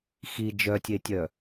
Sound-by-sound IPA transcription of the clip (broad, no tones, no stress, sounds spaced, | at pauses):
x i d͡ʒ œ tʲ e tʲ œ